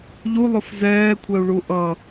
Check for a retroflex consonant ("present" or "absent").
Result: present